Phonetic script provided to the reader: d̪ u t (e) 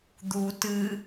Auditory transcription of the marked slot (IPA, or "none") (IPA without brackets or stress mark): ɨ